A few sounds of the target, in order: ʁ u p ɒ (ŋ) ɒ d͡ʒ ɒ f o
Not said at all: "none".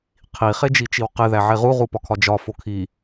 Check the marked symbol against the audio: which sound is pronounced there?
kʰ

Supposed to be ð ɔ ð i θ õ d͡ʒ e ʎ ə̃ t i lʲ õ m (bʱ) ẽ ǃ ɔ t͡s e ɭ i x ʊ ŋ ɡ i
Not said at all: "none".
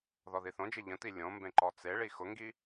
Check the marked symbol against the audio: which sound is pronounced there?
b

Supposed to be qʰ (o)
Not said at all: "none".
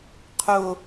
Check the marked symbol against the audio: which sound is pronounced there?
o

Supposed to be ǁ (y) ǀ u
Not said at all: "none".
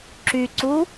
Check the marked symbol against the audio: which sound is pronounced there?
y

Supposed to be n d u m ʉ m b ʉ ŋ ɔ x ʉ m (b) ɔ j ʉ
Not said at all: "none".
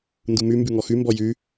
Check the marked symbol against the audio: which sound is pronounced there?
b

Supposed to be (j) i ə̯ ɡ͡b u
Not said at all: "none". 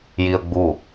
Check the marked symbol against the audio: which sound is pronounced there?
j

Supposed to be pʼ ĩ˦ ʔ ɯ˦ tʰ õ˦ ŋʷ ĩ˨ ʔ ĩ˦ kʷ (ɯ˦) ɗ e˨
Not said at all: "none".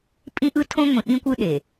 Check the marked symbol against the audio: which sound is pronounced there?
ɯ˦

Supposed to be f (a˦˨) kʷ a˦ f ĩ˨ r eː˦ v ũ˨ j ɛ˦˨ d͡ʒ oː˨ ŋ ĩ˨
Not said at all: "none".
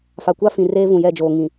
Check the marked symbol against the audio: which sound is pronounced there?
a˨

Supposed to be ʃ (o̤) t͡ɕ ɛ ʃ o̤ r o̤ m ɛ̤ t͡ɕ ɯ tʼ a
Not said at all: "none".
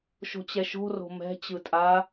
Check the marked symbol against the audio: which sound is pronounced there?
o̤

